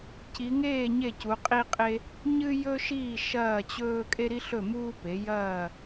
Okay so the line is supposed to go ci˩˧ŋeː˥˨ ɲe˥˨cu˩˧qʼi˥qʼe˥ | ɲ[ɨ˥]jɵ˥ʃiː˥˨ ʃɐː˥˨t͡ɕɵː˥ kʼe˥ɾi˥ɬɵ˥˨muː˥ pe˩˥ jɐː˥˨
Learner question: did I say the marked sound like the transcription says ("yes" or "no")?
yes